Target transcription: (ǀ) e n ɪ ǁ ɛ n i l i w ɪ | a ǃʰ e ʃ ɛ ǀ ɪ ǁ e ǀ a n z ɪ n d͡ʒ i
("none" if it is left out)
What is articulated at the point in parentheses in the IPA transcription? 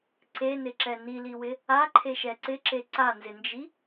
ǀ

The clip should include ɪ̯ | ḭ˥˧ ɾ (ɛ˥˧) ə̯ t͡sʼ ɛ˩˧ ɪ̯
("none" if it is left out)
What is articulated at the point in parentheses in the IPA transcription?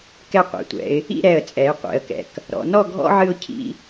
ɛ˧˩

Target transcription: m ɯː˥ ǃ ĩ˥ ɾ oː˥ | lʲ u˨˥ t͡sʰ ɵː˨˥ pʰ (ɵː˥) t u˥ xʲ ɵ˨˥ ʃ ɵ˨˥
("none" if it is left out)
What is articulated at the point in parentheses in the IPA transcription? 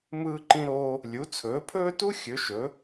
ɵː˥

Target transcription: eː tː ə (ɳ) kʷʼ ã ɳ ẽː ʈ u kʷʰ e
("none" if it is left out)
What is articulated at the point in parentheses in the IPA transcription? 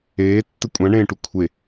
none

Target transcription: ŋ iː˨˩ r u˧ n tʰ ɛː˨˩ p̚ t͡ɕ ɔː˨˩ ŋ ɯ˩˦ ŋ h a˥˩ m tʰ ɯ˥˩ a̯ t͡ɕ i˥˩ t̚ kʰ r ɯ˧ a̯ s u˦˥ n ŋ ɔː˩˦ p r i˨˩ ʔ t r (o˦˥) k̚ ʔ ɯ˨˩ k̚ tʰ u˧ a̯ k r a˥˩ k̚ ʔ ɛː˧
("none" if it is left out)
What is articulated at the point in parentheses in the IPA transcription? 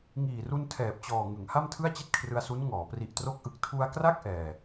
o˦˥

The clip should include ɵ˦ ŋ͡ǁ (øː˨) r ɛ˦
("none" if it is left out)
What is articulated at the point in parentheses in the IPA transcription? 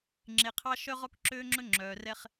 œː˨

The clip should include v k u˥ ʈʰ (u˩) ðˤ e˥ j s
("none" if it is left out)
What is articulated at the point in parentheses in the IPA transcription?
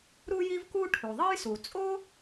u˩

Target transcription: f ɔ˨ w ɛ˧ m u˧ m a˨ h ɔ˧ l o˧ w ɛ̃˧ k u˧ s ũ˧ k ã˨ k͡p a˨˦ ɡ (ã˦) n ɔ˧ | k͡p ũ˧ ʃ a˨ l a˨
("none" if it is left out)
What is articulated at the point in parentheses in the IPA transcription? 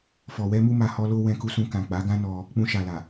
ã˦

